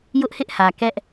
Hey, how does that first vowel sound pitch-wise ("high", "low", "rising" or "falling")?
high